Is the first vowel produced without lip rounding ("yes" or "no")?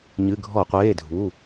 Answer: yes